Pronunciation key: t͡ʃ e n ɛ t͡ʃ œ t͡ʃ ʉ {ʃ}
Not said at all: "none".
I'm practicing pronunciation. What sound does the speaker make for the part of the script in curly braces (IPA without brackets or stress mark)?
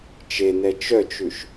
ʃ